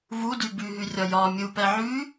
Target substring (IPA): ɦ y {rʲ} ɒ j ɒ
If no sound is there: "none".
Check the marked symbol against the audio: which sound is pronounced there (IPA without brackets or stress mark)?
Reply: rʲ